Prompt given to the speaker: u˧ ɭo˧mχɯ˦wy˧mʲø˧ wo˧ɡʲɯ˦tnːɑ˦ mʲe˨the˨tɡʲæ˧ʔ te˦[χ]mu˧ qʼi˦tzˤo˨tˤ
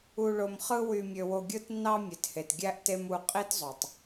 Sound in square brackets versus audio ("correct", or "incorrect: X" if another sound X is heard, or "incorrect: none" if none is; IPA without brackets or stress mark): incorrect: none